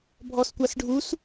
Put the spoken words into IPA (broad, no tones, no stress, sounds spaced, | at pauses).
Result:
bʱ ɔ s kʷ a s ɖʱ u s